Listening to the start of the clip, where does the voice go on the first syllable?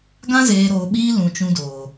high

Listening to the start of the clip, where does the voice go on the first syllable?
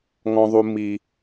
high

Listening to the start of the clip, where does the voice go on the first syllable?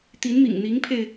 rising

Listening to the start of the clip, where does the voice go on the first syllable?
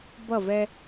falling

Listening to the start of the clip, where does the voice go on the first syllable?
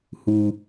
low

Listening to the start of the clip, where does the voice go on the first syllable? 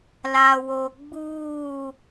low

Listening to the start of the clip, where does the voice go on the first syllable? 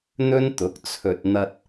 high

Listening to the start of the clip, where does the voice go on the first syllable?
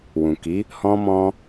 low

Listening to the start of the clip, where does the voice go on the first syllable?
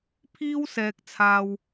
high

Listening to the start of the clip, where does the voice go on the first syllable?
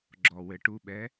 low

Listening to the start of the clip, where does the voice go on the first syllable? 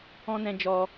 high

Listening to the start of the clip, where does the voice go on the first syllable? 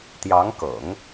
rising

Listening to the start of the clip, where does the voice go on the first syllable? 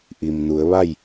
low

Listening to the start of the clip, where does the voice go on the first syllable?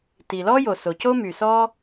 low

